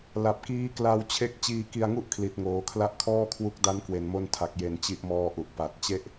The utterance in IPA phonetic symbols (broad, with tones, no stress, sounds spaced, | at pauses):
l a˨˩ p̚ k iː˦˥ k l a˧ w t͡ɕʰ e˦˥ k̚ t͡ɕ iː˧ k i˧ a̯ ŋ u˥˩ ʔ kʰ l i˨˩ t̚ ŋ oː˩˦ kʰ l a˦˥ ʔ kʰ ɔː˥˩ kʰ w u˦˥ k̚ d a˦˥ n k w e˨˩ n m o˧ n tʰ a˨˩ k̚ j e˨˩ n t͡ɕ i˦˥ ʔ m ɔː˦˥ ʔ u˨˩ ʔ p a˨˩ t̚ t͡ɕ e˥˩ ʔ